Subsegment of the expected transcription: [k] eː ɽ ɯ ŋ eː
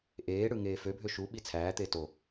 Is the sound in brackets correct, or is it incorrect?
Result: incorrect